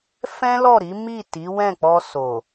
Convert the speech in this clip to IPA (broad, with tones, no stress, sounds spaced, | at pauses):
f ɛ̃˦ l ɔ˦˨ ɾ i˨˦ m i˦˨ t i˨˦ w ɛ̃˦˨ k͡p ɔ˧ s o˨